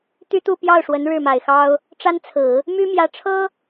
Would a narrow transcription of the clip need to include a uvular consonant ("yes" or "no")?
no